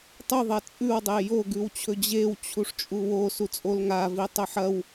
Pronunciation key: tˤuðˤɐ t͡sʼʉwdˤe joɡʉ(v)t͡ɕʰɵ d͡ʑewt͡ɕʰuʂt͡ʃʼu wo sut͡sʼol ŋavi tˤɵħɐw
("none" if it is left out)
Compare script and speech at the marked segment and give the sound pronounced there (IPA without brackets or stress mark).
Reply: w